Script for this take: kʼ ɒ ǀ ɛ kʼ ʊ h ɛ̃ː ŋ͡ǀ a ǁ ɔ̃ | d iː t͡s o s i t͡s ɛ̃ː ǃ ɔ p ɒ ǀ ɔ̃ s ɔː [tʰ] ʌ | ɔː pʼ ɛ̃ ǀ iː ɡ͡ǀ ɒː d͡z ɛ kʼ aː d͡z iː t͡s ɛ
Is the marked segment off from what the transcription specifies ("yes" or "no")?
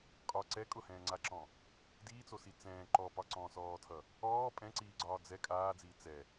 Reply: no